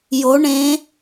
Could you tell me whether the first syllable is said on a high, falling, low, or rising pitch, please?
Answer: rising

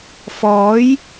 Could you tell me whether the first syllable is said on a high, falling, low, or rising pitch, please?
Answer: rising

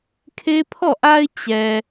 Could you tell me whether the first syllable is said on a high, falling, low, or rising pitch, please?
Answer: high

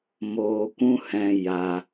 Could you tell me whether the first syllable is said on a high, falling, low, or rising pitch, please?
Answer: low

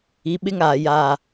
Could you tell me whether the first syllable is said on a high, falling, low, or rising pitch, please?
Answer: rising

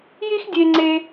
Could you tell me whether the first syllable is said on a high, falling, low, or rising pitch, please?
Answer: high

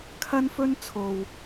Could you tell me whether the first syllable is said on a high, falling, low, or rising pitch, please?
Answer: high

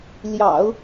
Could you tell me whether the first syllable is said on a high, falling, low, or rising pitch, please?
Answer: low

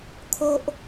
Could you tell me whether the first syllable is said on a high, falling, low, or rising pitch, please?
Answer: high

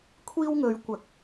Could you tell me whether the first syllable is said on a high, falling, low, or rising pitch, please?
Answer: high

